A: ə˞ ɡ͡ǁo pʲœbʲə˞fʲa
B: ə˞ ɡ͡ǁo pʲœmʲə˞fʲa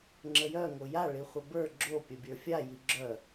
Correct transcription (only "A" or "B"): A